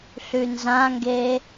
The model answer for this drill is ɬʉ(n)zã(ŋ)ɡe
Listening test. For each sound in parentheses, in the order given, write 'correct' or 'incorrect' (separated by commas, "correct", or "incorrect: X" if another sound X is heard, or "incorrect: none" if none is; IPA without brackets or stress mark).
correct, correct